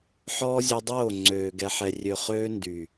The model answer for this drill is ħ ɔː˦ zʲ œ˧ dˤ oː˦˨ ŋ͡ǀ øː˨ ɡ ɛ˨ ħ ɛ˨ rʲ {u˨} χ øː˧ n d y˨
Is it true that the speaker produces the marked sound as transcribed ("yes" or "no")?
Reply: no